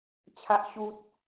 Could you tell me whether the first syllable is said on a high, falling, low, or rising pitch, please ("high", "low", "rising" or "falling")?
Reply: high